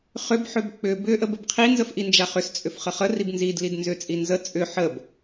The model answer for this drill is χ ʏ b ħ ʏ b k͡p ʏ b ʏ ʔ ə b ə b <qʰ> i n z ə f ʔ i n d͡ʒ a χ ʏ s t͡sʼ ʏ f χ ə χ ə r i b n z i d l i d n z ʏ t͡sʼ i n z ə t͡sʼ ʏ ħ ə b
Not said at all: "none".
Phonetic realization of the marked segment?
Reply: qʰ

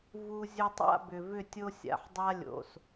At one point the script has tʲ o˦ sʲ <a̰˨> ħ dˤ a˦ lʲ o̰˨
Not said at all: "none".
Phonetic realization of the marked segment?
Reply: a̰˨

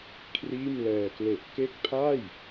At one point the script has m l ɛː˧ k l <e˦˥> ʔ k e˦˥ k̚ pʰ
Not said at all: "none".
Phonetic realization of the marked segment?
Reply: e˨˩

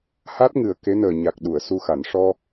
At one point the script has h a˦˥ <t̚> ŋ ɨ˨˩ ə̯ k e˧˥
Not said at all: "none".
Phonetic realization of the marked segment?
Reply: t̚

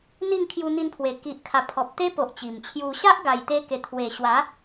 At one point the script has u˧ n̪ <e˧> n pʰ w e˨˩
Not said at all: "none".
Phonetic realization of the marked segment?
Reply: i˧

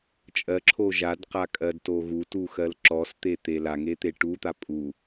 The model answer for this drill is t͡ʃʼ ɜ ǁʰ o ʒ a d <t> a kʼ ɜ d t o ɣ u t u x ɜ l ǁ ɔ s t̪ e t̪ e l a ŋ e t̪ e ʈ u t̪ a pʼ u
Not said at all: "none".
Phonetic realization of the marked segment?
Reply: q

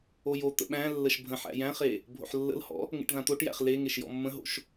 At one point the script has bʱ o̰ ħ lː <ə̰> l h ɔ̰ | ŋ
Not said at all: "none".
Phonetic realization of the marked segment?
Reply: ə̰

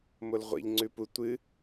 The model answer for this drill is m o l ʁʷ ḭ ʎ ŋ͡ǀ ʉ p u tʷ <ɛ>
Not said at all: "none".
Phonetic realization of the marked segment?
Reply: ɨ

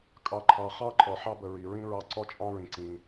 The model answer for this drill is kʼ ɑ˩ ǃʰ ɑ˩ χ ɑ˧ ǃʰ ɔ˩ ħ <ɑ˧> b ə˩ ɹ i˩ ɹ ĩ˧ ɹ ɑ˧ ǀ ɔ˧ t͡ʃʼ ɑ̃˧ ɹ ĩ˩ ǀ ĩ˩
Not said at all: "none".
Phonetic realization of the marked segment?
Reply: ɑ˧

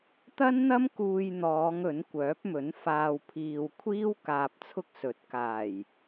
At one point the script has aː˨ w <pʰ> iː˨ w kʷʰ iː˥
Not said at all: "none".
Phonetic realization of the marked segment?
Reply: pʰ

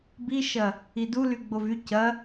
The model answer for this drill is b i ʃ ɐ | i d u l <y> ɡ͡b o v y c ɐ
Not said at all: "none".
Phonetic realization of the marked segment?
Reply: y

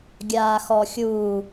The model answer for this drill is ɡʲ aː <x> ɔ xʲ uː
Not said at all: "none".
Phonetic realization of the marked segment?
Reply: x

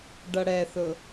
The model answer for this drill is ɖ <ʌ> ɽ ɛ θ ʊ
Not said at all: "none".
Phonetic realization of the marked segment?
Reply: ʌ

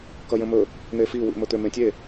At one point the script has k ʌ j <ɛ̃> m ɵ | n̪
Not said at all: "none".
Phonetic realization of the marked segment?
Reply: ə̃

